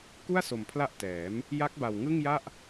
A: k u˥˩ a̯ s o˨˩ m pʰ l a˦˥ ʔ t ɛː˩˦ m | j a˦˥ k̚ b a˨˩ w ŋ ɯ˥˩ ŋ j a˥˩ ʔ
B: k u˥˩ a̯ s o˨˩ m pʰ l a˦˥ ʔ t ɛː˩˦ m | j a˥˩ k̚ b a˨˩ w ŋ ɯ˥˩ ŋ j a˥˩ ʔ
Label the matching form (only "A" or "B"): A